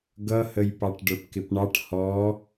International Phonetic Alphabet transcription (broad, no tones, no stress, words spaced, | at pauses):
ɡʌhəjpɑʈ ɖə˞pkɪpɳɑʈ hɔ